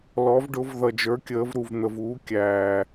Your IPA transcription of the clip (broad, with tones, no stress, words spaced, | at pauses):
lɔ˩˧v ɖʊ˩˧v ðʌ˩d͡ʒə˞˩˧ kʲəː˩˧vɾu˩vn̪ə˩v uː˩˧kʲæː˩